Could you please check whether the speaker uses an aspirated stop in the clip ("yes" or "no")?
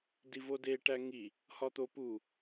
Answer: no